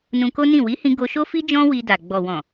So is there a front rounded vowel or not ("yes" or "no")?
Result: no